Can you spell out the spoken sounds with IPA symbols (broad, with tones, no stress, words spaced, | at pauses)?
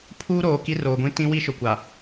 pʰuː˦ɾoː˨ ki˦roː˨ɡʷĩ˦ tĩ˦wi˦ʃʊ˨kʷa˨